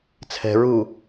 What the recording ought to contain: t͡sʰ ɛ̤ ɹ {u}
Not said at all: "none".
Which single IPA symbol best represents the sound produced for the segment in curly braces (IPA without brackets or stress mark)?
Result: u